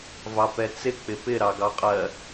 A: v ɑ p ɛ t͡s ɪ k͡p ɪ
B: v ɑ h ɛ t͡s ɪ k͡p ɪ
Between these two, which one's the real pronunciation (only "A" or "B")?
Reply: A